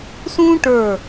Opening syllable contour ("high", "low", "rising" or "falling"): high